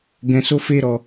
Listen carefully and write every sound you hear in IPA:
ɡ ɛ̃˧ s o˦ f e˦ ɾ ɔ˧

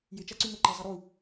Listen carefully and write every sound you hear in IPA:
j ɪ t͡ʃ a ǀ y ŋ o ǃ ɛ zˤ ɐ ɾ u

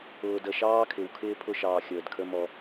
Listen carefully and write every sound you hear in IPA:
ʊː˨ d ə˨ ʃ ɑː˦ kʰ ɪ˨ w kʰ ɪː˦ pʰ ʊ˦˨ ʃ ɑː˨ xʲ əː˨ d kʰ ə˧ m ɔ˧

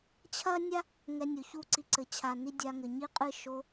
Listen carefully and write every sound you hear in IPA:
t͡ɕʰ ɐ˦ nʲ a˦ | ŋ ɛ˧ nʲ o˨ ç u˦ ǀ i˧ ǀ ɘ˨ t͡ɕʰ a˨ n i˦ dʲ a˧ ŋ ɘ˨ ɲ i˦ qʼ ɨ˦˨ ʃ o˧

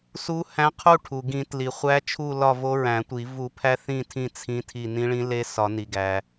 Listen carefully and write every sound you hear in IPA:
s u˧˥ h æ̃˧˥ qʰ u˦˨ ʈʰ u˩ ɡ ĩ˨˩˦ t l i˩ χʷ æ˧˥ t͡ʃʰ u˦˨ l ɒ˦˨ v o˧˥ ɹ æ̃˨˩˦ tʷ i˨˩˦ v u˨˩˦ pʰ æ˧˥ θ ĩ˦˨ tʰ ĩ˦˨ t͡sʰ ĩ˧˥ tʰ i˦˨ n ĩ˧˥ ɭ ĩ˧˥ l e˧˥ s ɒ˨˩˦ n i˩ ɡ æ˩

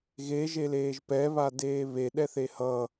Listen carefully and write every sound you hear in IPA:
ɣ e ʒ e l eː ʒ p ɛ β a d eː β e ɗ ɛ θ e h ʌ

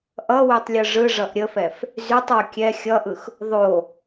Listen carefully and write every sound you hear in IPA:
ʔ ʌ w y tˤ lʲ ɯ ʐ ɯ ʐ ʌ ʔ ɾʲ ə f ɛ f | z y tˤ w ə kʲ ɛ xʲ ʌ ʔ ɯ x | ðˤ o

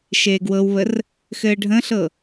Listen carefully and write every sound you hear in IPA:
ʃ eː ɡ w ɤ w β ə r | x ɘː ɖʱ ə̃ ɬ ɤ

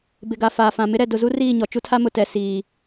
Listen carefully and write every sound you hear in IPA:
b ɪ˨ ɡ a˨ f aː˨ f ã˨ m ɪ˦ ɾ ɛ˨ d ʊ˨ z u˦ r iː˦˨ ɲ ɔ˨ t͡ʃ u˦ tʰ a˦ m ʊ˨ t ɛ˨ s iː˨

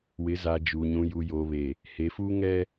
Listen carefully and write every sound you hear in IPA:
w ɪ˨˦ z a˨ d͡ʒ uː˨ ɲ ũ˨ j u˨ j oː˨ β e˨ | h e˨˦ f uː˦ ŋ ɛ˦

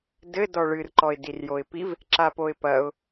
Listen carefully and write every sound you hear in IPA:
d ɘ d ɔ ɭ ɨ r ǃ ɔ ɪ̯ d i r j o ɪ̯ p i v | ǁ a p o ɪ̯ p ɐ ʊ̯

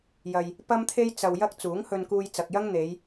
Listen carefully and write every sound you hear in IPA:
j ɐ˧ j | p ɐ˥ m t̪ʰ e˥ j t͡s ɐ˧ w j ɐ˥ k̚ t͡s uː˨˥ ŋ h ɵ˧ n k uː˧ j t͡s ɐ˨ k̚ j ɐ˥ ŋ n̪ e˨˧ j

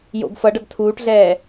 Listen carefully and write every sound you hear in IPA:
j o̰ ɡ f ʌ ɖ ʌ ɡ tʰ uː ʈ ɮ ɛː

